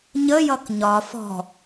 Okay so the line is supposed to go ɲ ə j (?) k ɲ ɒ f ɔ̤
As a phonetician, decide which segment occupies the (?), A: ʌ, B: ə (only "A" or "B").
A